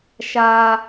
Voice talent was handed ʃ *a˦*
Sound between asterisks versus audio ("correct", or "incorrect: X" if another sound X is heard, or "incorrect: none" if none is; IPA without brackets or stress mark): correct